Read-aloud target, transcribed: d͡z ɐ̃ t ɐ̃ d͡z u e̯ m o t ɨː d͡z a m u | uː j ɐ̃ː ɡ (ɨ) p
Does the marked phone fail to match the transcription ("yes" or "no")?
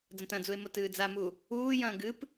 no